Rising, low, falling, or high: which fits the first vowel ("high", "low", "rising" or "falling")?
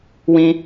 high